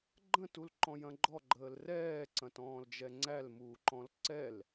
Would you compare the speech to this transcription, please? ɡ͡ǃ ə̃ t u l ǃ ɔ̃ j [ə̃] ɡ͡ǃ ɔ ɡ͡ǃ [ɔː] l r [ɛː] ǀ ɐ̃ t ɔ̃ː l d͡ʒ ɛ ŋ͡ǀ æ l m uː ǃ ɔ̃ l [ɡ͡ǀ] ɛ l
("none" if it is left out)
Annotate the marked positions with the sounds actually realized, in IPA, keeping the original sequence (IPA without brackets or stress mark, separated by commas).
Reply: ɐ̃, əː, ɛː, ǀ